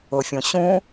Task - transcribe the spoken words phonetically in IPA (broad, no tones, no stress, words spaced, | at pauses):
ʊfʲõ ɕũ